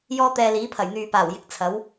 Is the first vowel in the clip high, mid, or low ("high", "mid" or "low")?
mid